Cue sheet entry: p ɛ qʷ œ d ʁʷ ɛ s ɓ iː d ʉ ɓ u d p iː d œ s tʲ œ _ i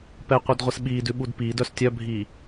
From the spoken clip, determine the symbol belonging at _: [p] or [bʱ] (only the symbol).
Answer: bʱ